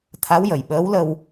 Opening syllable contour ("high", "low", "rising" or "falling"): rising